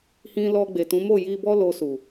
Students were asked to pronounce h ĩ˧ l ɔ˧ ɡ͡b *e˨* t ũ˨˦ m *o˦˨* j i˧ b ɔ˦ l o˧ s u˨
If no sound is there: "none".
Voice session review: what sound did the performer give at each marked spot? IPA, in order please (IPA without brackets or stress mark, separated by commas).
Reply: e˨, o˦˨